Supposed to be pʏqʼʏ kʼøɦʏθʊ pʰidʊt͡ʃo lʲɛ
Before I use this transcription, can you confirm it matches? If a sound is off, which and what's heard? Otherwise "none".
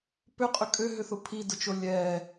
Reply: none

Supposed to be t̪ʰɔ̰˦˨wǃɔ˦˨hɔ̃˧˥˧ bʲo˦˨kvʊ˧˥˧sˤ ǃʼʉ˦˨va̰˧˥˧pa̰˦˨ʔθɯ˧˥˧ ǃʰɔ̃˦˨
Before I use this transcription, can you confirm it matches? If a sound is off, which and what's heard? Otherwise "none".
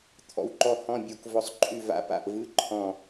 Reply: θ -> v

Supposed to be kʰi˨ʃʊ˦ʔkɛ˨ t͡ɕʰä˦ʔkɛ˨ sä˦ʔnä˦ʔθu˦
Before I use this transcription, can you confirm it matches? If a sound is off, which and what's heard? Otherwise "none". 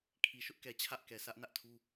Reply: θ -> tʰ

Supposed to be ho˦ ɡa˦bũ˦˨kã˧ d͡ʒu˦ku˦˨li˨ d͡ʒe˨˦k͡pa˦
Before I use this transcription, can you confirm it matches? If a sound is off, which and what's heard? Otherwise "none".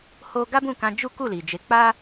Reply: none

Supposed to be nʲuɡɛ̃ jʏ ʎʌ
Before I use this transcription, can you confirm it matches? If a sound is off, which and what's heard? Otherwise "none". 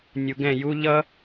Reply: ʏ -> u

